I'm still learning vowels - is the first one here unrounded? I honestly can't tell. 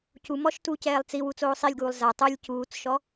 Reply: no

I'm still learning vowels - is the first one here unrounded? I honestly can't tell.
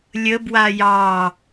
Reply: yes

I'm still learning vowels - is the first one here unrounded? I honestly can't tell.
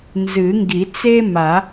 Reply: yes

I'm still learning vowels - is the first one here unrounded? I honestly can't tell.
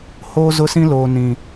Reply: no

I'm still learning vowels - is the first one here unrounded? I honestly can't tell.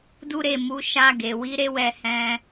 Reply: no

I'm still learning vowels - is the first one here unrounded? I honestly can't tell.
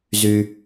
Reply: no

